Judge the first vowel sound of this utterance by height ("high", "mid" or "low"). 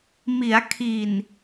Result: high